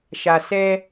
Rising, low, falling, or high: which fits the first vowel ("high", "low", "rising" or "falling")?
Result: low